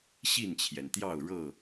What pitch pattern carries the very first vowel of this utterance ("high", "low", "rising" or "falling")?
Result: falling